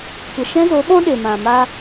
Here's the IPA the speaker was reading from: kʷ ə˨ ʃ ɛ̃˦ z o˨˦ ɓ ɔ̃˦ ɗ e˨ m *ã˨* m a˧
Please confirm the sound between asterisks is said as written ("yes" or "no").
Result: yes